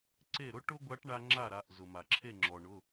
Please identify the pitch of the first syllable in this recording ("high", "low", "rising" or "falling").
falling